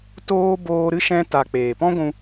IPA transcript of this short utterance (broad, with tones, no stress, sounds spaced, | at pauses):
t oː˦ b oː˧ ɾ ɨ˦ ʃ ɛ̃˧ t a˨ k͡p eː˨ p ɔ̃˦ ɡʷ ũ˧